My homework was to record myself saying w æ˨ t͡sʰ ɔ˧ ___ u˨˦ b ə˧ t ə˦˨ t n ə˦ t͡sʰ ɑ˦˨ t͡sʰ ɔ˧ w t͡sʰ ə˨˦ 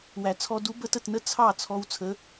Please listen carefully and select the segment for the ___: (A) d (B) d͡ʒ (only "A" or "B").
A